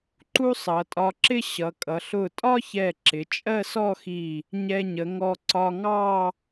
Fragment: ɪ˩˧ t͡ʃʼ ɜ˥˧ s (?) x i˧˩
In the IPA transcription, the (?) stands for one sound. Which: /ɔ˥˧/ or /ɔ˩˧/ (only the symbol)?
ɔ˥˧